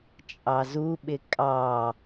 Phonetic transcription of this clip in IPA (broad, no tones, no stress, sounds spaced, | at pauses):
t͡ʃʼ ɑ z u ɓ ɪ kʼ ɑ